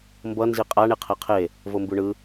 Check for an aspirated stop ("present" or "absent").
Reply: present